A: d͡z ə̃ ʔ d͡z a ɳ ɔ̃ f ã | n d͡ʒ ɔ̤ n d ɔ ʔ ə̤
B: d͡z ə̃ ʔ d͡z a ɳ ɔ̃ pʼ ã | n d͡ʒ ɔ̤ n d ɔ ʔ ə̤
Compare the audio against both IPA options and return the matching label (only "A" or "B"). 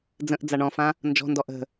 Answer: A